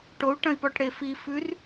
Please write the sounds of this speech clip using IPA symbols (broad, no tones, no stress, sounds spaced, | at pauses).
ʈ o u̯ ʈ ɐ̃ i̯ p ɔ ʈ ɽ e f i f ʉ r